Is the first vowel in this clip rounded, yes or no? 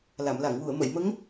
no